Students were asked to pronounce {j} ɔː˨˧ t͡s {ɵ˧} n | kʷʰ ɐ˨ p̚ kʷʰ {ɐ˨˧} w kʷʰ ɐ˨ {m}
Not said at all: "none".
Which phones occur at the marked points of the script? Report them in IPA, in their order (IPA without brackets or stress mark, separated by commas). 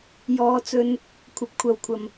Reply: j, ɵ˧, ɐ˨, m